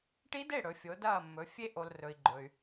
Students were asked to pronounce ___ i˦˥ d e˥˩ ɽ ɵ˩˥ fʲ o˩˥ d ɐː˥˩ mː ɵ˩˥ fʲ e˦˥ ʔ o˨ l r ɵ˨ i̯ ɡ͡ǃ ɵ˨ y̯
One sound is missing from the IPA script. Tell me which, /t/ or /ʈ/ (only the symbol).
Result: ʈ